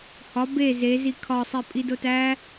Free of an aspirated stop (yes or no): no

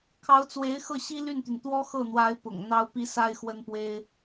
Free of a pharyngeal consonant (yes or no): yes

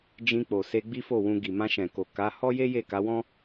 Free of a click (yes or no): yes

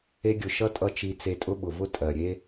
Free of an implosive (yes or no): no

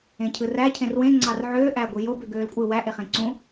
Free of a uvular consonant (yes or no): no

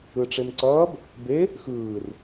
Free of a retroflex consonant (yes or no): no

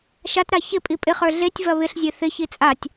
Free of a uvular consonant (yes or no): no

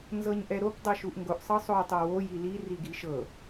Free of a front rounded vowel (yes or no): yes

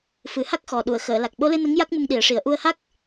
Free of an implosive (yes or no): no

